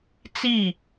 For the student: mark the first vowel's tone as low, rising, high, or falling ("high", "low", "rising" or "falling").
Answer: falling